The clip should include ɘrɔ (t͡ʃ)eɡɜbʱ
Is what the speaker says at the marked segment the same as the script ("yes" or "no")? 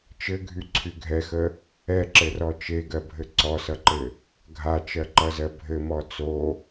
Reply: yes